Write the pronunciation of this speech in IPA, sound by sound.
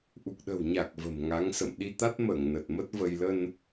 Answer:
ʔ u˨˩ k̚ ɗ ə̤˨˩ w ɲ a˨˩ k̚ v ə̤˨˩ m ŋ a˨˦ ŋ s ə̰˧˨ m ɗ i˧ t̪ a˦˥ t̚ m əː˧˩ ŋ n ə˨˩ t̚ m ə˦˥ t̚ v ə˧ j l ə˧ n

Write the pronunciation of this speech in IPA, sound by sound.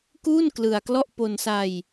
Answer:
k uː˥˩ n k l ɯ˧ a̯ k l ɔ˥˩ ʔ p o˧ n s a˧ j

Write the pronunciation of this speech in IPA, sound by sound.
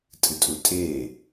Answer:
tʼ ɨ tʼ u tʼ eː

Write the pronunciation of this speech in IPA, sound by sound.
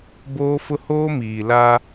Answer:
b oː˦ f ʊ˦ h oː˦ m iː˨ l a˦

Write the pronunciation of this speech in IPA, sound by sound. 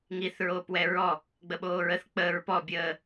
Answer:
ŋ i θ ɹ oː p w ɛ ɹ ɔ | ɡ͡b ə ɓ oː ɹ ə θ k͡p əː ɹ p ɔ bʲ əː

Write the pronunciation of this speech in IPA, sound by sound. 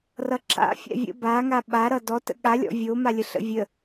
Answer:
r ʌ ǁ a̰ fʲ a̰ vʲ ə̰ b a ŋ a ɓ a ɾ ʌ d ɔ t ə̰ ɠ a lʲ ɔ̰ vʲ o m a lʲ ə ɬ ə̰ vʲ ə

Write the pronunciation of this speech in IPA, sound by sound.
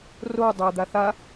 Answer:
r o dˤ æ d̪ a θ a

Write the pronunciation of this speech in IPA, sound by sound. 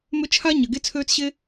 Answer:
m ʏ˦ t͡ʃʰ a˦ ɲ ɐ˨ ɡ e˧ t͡sʰ øː˧ t͡s ɕ e˧

